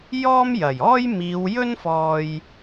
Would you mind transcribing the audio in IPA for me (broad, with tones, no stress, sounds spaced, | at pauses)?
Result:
j ɔː˥ m j ɐ˨˩ j ɔː˥ j m iː˨˧ w j ɵ˥ n f ɔː˧ j